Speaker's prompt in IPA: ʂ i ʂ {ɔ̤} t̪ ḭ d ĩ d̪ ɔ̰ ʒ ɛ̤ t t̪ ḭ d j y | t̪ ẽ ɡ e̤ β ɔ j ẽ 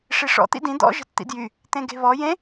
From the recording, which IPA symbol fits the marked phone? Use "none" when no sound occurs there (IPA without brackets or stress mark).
ɔ̰